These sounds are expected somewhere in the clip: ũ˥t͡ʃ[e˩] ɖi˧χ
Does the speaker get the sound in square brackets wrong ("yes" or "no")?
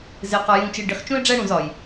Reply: yes